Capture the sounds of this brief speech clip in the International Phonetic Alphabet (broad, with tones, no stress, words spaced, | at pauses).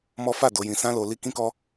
mɔ˦ fa˦˨ do˨˦jĩ˧ sã˦lo˧ li˦ kĩ˦kɔ˦